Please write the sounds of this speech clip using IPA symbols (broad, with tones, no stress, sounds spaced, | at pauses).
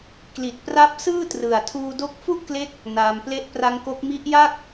k l i˨˩ t̚ p r a˦˥ p̚ s ɯː˥˩ t r ɯ˨˩ a̯ tʰ uː˧ d o˦˥ k̚ f u˥˩ ʔ k l e˦˥ k̚ | n aː˧ m p l e˦˥ ʔ p r a˦˥ ŋ k o˦˥ k̚ m i˦˥ ʔ j a˥˩ k̚